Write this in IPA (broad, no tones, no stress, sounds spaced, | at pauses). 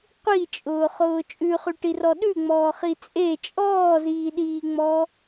qʷ i t͡ʃʼ ʊː χ ʊː t͡ʃʼ ʉ χ ʉ ʈ i r ɔ ɗ ʉ ŋ͡m ɔː χ i t͡sʼ e t͡ʃʼ ɔː z iː ɗ iː ŋ͡m ɔ